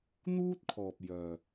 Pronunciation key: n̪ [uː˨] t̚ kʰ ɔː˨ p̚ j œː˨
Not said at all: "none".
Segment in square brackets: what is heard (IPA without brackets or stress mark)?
uː˥